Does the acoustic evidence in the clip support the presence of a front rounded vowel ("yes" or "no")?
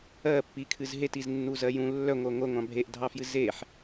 yes